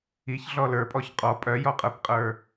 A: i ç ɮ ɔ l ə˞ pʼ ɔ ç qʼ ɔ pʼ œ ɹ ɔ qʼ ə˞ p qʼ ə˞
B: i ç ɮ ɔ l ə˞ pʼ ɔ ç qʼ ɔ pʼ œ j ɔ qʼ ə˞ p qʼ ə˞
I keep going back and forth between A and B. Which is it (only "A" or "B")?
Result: B